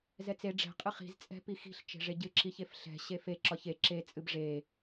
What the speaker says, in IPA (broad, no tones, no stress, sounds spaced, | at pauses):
z ɛ t͡s e ɖ͡ʐ ɛ̤ qʼ ɨ χ i̤ z t͡sʼ ɛ̤ p i x i̤ ɬ t͡ʃ e̤ ʐ e ɟ ɨ ǁ i ç e f ɬ ɛ̤ ɕ e f e ǁ ɒ ç e ǁ e t͡sʼ ɨ b ʐ e